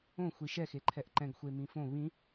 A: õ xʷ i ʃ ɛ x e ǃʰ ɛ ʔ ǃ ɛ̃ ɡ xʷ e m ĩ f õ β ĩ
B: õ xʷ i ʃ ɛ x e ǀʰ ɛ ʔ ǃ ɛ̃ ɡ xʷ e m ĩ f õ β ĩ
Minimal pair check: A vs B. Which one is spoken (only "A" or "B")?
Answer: A